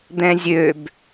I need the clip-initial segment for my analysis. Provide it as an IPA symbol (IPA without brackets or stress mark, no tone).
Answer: d̪